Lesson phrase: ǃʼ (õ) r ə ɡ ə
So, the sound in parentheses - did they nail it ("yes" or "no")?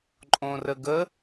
yes